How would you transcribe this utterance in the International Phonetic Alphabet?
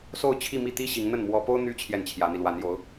s o˥˧ ʊ̯ t͡ɕʰ i˥˧ m i˥˩ t̪ i˥ ɕ i˧˥ ŋ n̪ ə˥˩ n m w ɔ˥ p o˥ ʊ̯ n̪ y˥ t͡ɕʰ j ɛ˥˩ n t͡ɕʰ j ä˧˥ n̪ i˧ l w a˧˥ n j o˧˥ ʊ̯

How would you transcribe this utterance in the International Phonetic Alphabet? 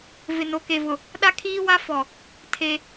v ɪ˨ n o˨ k e˨ v ʊ˨ | ɗ a˦ kʰ iː˦ w a˦ f ɔ˨ | tʰ e˦

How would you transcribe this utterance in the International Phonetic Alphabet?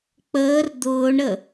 k͡p əː r d̪ ʊː ɳ ɾ ə

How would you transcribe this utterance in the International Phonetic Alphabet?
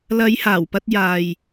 l ɐ˨˧ j h aː˨˩ w p ɐ˧ t̚ j aː˨ j

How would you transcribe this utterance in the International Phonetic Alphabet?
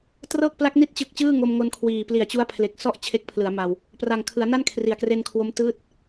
t r ɤː˥˩ k̚ p l a˦˥ k̚ n i˥˩ t̚ t͡ɕ ɯ˨˩ k̚ t͡ɕ ɯː˥˩ ŋ o˧ m ŋ o˧ n kʰ w iː˨˩ p l i˩˦ a̯ t͡ɕ u˦˥ a̯ pʰ l e˨˩ k̚ s ɔ˥˩ ʔ t͡ɕʰ e˦˥ k̚ pʰ l ɯ˩˦ a̯ m a˧ w | p r a˨˩ ŋ kʰ ɯ˩˦ a̯ n a˥˩ n kʰ r i˨˩ a̯ k r e˧ n kʰ w o˦˥ m t ɯː˦˥ t̚

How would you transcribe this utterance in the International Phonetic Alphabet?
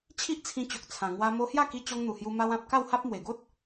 t͡ɕʰ i˦ ʔ t͡sʰ ĩ˧ t͡ɕ o˨ k̚ t͡sʰ ã˨˩ ŋ w a˧ m o˧ h j a˥˧ k i˧ t͡ɕ ɔ˧ ŋ n̪ u˨˩ h j u˧ m a˧ w ã˨ p̚ k a˥˧ w h a˦ p̚ m w e˨˩ ɡ o˦ t̚

